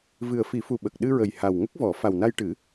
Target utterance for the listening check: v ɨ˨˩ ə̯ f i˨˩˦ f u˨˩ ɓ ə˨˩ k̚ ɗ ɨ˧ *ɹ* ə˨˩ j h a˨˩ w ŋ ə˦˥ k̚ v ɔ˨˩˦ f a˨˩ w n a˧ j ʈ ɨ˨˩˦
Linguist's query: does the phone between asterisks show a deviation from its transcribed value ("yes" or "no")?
no